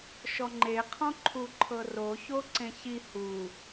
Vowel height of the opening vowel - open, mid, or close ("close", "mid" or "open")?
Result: mid